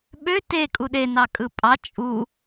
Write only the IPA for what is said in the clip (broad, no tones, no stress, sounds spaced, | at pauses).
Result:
ɓ ø t e kʼ u ɗ e n ɑ kʼ ɯ pʼ ɑ t͡ʃʼ u